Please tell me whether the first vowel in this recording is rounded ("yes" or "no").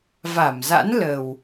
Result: no